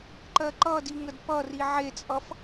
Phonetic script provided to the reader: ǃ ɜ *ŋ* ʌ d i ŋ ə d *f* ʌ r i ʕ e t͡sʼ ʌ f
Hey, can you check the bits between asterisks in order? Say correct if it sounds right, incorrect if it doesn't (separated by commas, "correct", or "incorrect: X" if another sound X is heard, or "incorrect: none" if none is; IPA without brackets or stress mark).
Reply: incorrect: ǃ, incorrect: p